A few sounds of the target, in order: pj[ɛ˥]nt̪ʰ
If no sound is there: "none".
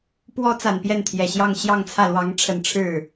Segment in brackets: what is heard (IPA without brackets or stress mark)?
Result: ɛ˥˩